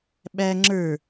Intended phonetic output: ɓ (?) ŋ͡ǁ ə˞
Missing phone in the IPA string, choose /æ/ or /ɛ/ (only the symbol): æ